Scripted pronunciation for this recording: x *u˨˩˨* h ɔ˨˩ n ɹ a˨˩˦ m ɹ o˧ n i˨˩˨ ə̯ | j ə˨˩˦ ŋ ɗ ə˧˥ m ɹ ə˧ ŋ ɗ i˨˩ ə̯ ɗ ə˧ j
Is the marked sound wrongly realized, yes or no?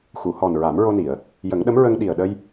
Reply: no